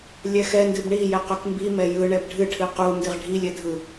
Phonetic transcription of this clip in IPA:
lʲɛxɛndɨb ɳijɛ qɵkmbimɛ jɯ ɳɛbɖʱɨʈʰɨ qu ndɨʁɖʱilʲɛ dʱɯ

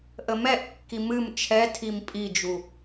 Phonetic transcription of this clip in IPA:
ʔəmɛʔkːi mɨm t͡ʃʰɛtʰim pʼid͡ʒu

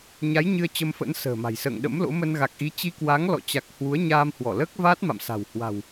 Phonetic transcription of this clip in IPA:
ɲa˨˦j ɲɨ˧ə̯t͡ɕə˧mfə̰˧˥n sə̤ː˨˩ma̤˨˩jsə̰ː˧˨ŋ ɗə̰˧˥mlo̰˧˥mə˧n ɣa˨˩k̚ʔi˨˦ t͡ɕi˧kwa˨˦ŋ lɔ̰˧˨t͡ɕa˨˩k̚ hwu˨˦ə̯ɲaː˧mhwɔ˧˩ləː˦˥k̚ vaː˦˥t̚ma̰˧˨msa̤˨˩w hwa̤˨˩w

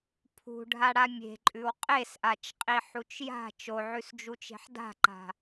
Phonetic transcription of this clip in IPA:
pʰṳɖʱa ɽamʲe̤ǃʼʉw qʼesʔat͡ʃqʼi ħut͡ʃja̤ t͡ʃoʕʉsd͡ʒut͡ʃe̤ħ da̤ǃa̤

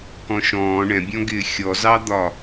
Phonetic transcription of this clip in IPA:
kɔ̃ʃɔ̃ː ɳɛ̃bʲɔ̃ɡɪː xʲɔzɑd̪ɒ

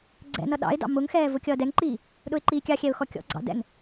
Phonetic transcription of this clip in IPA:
ɡ͡ǀɛ̰nʌ ɗɑ̰ɪ̯dɑ̰ mʊŋxɛː vʊkʲʌːdɛŋǃiː | ɗʊɪ̯ǃiːkʲɑxʲɛʊ̯ xɔkʲɔ̰ɡ͡ǀɑ̰ dɛ̰ŋ

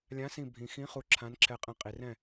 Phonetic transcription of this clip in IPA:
lʲã˨˥sĩ˧˩bʱĩ˩xĩ˨˥ χu˧˩ǁʰã˨˥n ǁʰɛ˧˩qʼɛ̃˧ qʼi˩rɛ̃˥˩

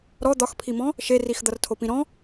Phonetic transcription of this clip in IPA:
ɾɔ d̪ɒxpʰimɔ̃ | ʃerix d̪ʌrtʰopĩɾɔ̃

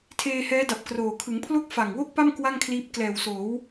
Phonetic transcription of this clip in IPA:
tʰeː˧hɛː˦˥da˨˩p̚kroː˨˩ kʰɯ˩˦ŋpʰlo˥˩k̚ fa˨˩ŋwo˥˩k̚pa˥˩m kwa˥˩ŋkʰliː˦˥p̚ klɛː˨˩wsoː˩˦w

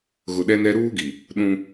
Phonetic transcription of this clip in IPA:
ɣʊ˨ɗɛ˦nɛ˦ ɾuː˦ɡi˨ | ɗũ˦

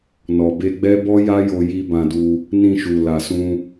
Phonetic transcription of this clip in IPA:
nɔ˨be˧ɡ͡bɛ˦ bɔ˦ja˦jo˧ji˧ bã˧du˧ | nĩ˧ʃu˨ la˨sũ˧

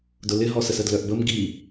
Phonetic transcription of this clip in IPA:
dʊlɪɦɔsə sədlœʔbəm ɡi

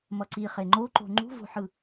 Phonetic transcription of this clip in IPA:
mʌǀi χeŋ͡ǃoǃo̤ ŋ͡ǃṳvo̤ħɯ

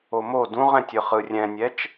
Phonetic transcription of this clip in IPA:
omo dũʁɛ̃tʲɯ χɯrʲɛ̃nʲɛt͡ʃ

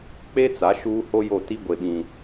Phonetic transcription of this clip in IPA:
k͡pe˦t͡sa˨˦ ʃuː˦ho˦jo˦˨ ti˦ɡʷe˨ɓĩ˨

